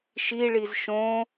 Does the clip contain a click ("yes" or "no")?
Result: no